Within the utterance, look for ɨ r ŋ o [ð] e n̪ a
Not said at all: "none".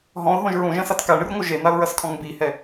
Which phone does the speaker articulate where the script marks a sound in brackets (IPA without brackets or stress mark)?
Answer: ʒ